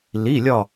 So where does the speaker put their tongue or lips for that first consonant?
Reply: tongue tip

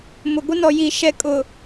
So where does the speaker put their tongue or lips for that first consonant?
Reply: lips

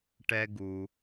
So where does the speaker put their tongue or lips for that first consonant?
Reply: retroflex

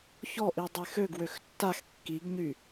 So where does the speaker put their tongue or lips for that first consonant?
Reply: palate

